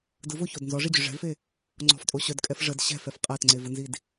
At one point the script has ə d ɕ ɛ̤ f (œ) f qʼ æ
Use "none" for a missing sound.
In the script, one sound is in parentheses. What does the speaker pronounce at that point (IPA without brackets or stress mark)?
ɛ